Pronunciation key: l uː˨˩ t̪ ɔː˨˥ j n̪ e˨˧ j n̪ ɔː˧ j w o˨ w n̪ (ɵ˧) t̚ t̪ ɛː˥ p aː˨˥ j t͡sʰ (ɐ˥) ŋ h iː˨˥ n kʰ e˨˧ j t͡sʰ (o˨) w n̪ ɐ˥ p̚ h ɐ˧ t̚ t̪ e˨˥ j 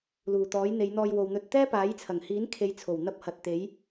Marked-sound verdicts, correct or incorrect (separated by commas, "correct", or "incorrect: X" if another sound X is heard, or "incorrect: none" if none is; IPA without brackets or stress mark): correct, incorrect: ɐ˨˩, incorrect: o˨˩